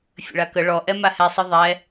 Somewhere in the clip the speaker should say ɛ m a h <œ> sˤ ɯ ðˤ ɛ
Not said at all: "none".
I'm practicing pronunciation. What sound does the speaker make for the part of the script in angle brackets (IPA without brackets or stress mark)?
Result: ɛ